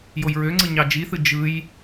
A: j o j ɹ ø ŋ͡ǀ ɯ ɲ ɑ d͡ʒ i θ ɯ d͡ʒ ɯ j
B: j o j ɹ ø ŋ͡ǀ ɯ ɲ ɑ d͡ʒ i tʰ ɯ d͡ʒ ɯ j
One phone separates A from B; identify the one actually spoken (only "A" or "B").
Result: A